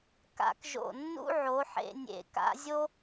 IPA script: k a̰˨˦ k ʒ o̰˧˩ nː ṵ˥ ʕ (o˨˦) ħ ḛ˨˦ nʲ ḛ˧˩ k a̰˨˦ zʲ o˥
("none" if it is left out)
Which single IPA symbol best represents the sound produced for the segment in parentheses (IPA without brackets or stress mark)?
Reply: o˨˦